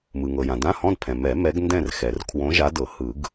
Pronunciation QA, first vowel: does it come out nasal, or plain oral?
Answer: oral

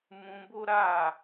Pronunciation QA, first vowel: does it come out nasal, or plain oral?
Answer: nasal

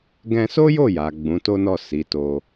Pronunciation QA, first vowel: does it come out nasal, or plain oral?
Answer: nasal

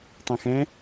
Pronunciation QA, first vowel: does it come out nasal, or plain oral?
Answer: nasal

